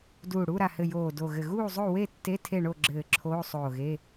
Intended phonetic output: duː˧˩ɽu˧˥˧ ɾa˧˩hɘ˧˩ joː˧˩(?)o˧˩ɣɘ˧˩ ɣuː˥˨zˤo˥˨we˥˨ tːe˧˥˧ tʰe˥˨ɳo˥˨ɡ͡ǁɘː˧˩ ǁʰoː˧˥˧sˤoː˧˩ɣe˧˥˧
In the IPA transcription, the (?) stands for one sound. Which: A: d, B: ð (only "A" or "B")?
A